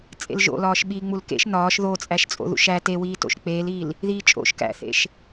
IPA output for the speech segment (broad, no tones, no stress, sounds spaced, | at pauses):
t͡sʼ ḛ l ʒ o̰ l ɒː ʃ ɓ iː ŋ͡m u l k ḛ ʃ n ɒː ʃ ð oː t͡sʼ æ ʃ t͡sʼ o̰ ð ṵ ʃ æ t e w iː t o̰ ʃ k͡p eː l iː l | ð iː t͡ʃʼ o̰ ʃ k æ̰ θ ḛ ʃ